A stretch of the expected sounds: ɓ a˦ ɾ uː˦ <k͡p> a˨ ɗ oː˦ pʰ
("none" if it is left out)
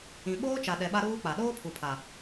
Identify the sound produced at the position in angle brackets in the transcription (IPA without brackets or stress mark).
k͡p